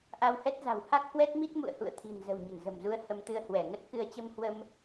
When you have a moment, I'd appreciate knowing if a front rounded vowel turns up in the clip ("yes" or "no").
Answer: no